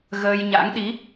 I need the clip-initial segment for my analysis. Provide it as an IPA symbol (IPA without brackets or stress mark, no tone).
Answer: ɣ